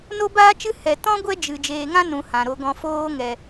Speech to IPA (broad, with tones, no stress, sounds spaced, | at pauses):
n o˦ b aː˦ t͡ʃ ɨ˦ h ɛ˨ t ɔ̃˦ ɡʷ ɛ˦ d͡ʒ ɨ˨ d͡ʒ eː˨ ŋ ã˦ n ũ˨ h ã˨ ɾ o˧ ɡ ɔ̃˨ f oː˧ ŋ ɛ˨